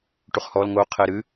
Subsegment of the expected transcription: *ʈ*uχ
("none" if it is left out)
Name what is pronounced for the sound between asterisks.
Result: ʈ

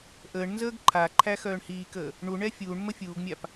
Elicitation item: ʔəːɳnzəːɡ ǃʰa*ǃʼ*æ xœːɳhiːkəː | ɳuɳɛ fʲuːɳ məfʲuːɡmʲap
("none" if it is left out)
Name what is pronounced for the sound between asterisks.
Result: ǃʰ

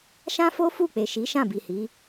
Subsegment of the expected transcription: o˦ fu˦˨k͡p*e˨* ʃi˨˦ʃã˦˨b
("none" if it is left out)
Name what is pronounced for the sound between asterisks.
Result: e˨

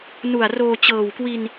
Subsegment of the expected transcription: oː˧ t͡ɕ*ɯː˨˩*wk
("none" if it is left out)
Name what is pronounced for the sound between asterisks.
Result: ɤː˨˩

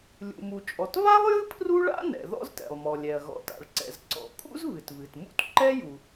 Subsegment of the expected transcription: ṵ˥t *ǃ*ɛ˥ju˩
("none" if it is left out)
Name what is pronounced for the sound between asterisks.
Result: ǃ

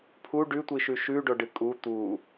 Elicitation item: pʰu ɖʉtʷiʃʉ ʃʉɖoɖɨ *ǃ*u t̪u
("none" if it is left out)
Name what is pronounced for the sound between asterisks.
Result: kʼ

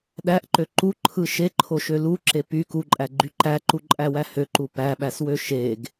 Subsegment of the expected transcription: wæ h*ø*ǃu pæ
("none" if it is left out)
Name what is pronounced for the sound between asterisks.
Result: ø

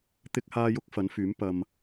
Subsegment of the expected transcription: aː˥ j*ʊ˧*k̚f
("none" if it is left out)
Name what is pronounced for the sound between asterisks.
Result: ʊ˥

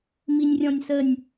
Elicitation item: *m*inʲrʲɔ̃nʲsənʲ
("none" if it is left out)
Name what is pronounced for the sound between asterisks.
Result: m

